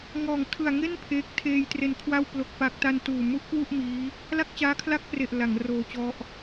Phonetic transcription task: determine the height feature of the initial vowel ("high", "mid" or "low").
mid